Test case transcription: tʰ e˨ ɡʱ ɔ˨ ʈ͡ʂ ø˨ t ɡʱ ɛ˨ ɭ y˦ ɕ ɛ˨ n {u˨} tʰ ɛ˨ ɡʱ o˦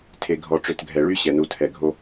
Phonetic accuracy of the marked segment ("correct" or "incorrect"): correct